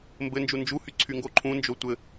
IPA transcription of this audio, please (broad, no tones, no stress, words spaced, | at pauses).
mbɘnd͡ʒu nd͡ʒuhy ǀʰyŋɡoǃʰũnd͡ʒo tʷɘ